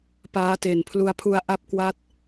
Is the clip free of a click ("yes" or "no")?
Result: yes